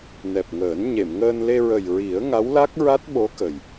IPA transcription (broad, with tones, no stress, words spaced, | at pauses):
nɛ˨˩p̚ŋəː˨˩˦n ɲe˨˩˨mŋəː˧nle˧ ɹə˨˩jɹi˨˩˦ə̯ ŋa˧˥wla˦˥k̚ɹa˦˥t̚ ɓo˧˥kə˨˩j